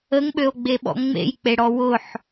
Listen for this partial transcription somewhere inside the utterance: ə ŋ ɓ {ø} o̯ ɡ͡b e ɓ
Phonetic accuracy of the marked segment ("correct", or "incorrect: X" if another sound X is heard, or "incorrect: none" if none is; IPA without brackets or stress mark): correct